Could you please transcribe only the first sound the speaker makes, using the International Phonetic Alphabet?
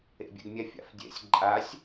ḛ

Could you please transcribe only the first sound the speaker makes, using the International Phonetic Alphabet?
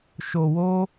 ʃ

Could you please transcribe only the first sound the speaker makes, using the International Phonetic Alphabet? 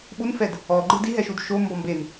ɓ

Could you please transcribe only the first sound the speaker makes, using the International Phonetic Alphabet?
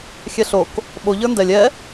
xʲ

